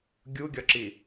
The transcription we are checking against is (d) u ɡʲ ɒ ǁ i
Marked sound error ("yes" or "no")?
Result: yes